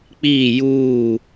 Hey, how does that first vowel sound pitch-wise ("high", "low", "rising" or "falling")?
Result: falling